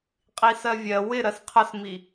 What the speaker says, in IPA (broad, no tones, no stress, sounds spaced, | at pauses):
qʼ i s ɜ vʲ ɜ w ɪ ɾ ɜ s qʰ ə s m i